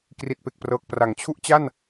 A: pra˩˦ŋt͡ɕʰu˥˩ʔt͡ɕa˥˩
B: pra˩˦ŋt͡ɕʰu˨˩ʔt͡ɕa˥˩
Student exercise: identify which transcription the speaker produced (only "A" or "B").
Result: A